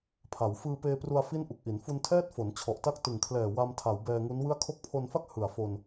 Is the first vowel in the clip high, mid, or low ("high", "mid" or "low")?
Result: low